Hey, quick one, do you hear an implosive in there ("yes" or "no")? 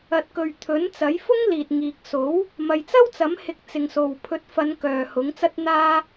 no